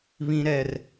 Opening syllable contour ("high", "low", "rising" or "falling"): high